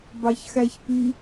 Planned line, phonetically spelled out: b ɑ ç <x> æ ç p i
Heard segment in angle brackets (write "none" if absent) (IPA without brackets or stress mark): x